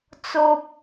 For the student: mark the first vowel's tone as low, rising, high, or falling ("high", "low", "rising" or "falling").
low